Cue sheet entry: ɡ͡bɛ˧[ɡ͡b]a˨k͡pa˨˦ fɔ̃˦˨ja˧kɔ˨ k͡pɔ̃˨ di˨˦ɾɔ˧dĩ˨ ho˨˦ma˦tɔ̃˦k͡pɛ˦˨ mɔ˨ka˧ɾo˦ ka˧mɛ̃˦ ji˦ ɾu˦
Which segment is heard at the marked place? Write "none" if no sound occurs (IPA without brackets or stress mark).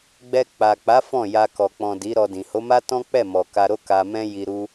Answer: k͡p